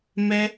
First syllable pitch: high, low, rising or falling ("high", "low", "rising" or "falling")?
high